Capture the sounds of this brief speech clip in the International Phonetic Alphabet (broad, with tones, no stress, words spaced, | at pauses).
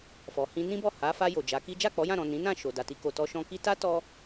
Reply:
fɔ˨hĩ˧nĩ˦bɔ˦˨ ha˨˦ fa˧ jo˨d͡ʒa˨˦ki˦ d͡ʒa˦˨k͡pɔ˨˦jã˦˨ɾɔ̃˨ nĩ˨˦nã˦˨ ʃo˨da˨ti˧ ko˨ tɔ˧ʃɔ̃˧ki˦ ta˦tɔ˧